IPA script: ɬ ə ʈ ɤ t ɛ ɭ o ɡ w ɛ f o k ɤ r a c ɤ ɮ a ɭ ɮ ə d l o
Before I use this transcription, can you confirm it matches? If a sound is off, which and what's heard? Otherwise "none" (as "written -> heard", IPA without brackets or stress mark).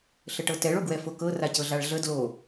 none